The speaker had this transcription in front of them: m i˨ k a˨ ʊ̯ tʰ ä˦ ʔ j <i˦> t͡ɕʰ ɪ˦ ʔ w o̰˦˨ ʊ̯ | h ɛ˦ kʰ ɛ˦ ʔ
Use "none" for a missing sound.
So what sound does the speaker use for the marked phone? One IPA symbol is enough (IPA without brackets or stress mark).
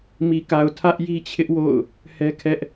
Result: i˦